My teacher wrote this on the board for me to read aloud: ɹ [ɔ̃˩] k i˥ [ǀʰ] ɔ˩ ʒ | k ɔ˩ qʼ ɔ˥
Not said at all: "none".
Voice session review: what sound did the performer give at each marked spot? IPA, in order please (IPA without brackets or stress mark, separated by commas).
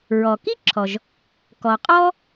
ɔ˩, ǁʰ